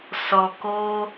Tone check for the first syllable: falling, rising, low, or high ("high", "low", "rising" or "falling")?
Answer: low